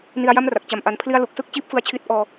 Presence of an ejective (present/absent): absent